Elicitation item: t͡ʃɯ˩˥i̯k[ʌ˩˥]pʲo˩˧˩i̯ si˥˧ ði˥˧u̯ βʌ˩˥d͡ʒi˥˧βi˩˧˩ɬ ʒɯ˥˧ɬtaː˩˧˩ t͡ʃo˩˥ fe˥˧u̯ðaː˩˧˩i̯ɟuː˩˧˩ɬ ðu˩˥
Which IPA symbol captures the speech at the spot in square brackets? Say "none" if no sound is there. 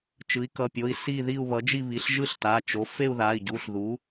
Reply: ʌ˩˧˩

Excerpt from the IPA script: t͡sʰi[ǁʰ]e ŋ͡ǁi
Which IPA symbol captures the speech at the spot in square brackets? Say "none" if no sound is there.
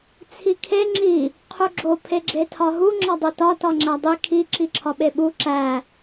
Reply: kʰ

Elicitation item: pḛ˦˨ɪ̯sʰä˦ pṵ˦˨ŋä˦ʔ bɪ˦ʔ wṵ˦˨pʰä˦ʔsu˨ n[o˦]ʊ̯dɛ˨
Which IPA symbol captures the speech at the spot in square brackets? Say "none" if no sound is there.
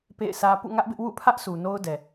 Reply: o˦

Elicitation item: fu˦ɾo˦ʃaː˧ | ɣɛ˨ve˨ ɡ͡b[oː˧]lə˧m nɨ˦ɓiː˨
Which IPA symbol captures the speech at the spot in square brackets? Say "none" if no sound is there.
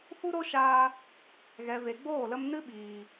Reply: oː˦˨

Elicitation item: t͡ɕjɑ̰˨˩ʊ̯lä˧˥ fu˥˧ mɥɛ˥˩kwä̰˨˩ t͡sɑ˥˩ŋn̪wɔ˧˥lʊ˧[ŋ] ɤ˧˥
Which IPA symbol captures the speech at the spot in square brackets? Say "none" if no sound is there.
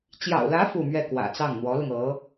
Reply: ŋ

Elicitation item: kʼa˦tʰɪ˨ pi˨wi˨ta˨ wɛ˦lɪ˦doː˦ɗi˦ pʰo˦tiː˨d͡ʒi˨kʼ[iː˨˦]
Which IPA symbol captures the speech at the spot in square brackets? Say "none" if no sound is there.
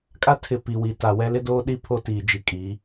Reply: iː˨˦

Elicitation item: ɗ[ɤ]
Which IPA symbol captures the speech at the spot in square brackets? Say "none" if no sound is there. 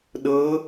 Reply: ɤ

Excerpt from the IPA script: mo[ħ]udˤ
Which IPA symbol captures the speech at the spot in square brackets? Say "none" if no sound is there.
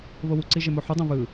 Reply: ħ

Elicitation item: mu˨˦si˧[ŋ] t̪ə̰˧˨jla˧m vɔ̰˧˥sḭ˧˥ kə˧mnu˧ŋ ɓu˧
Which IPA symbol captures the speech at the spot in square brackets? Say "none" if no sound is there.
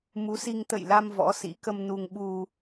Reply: ŋ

